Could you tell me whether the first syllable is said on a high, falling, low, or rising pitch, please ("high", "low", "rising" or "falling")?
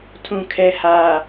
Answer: low